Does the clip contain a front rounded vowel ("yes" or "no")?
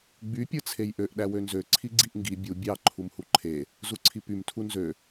yes